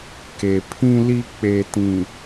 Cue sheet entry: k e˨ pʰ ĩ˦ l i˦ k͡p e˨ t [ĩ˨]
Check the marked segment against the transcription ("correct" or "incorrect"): correct